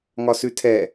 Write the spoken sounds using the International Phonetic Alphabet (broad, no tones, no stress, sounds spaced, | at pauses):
ŋ ɒ s ʉ tʰ ɛ